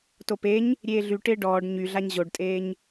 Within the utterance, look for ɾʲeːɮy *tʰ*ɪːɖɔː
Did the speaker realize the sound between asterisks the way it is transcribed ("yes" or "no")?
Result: no